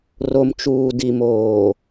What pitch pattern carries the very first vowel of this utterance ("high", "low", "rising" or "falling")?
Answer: low